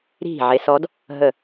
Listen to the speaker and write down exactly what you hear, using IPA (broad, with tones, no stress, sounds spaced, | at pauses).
ɾ i̤˦˨ ʕ e˧˥ s ɔ˧˥ d | ɦ ə˦˨